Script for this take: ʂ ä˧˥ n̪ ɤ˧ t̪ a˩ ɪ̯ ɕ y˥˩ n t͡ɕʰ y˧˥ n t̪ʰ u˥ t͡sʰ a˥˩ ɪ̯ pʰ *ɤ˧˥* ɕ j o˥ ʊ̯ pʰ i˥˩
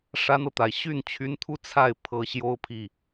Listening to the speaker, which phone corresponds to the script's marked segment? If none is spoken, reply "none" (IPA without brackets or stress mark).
ɤ˧˥